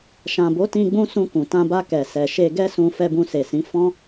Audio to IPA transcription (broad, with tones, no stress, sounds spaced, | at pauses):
ʃ ã˨ b o˨˦ t ĩ˧ ɡ͡b ũ˧ s ũ˧ k ũ˨ t ã˧ b a˧ k ɛ˨ s ɛ˨ ʃ e˧ ɡ ɛ˦ s ũ˧ f ɛ˧ b ũ˧ s e˨ s ĩ˨˦ f ɔ̃˦